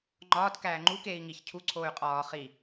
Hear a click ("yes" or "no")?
yes